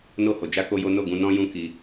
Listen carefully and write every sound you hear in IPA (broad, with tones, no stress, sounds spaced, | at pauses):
n o˧ h o˨ d͡ʒ a˧ k o˦ j o˦ n o˦˨ ɡ ũ˧ n ɔ̃˦ j ũ˦ k i˧